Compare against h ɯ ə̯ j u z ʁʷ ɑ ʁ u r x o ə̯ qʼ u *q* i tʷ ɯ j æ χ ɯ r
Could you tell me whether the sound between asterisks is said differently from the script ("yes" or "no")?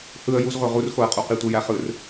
no